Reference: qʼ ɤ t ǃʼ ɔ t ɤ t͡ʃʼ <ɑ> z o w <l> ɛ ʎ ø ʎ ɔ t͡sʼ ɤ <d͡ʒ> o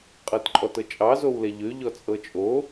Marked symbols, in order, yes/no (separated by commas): yes, yes, no